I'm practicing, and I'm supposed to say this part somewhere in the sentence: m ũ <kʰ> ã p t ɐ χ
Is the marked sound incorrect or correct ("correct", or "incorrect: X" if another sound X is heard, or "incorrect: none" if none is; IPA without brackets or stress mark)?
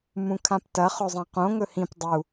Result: correct